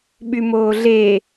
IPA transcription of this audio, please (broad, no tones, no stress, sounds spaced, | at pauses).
ɓ y m oː ɮ e